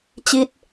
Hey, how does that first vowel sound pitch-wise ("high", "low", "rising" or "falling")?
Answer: falling